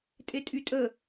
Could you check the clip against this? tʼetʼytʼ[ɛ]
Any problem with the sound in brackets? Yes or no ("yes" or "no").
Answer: yes